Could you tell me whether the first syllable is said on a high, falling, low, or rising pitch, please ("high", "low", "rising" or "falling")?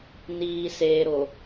low